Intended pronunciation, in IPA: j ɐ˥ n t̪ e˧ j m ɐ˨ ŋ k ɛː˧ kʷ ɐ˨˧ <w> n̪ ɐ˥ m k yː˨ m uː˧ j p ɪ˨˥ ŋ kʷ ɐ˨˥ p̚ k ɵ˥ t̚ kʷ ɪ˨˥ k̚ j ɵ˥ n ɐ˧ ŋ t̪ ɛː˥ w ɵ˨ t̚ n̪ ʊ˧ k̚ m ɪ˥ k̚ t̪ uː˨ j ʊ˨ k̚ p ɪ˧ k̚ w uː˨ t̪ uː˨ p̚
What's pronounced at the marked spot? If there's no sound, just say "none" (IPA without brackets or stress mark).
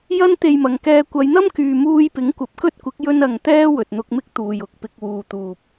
j